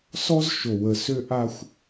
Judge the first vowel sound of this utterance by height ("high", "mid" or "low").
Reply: mid